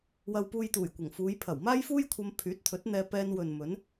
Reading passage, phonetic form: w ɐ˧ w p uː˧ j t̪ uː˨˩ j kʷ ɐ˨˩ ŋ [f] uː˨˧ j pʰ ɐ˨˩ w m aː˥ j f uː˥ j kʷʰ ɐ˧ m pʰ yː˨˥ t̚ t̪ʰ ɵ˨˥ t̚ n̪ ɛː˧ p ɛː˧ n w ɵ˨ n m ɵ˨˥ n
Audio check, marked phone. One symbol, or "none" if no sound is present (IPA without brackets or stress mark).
f